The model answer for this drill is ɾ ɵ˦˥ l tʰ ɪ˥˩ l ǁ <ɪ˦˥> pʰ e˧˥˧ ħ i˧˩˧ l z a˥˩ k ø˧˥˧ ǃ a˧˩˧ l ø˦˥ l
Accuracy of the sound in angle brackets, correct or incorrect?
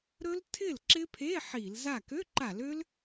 correct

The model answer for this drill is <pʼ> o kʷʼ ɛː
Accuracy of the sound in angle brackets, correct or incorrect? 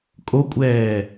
incorrect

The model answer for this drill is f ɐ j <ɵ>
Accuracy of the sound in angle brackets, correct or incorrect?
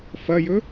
correct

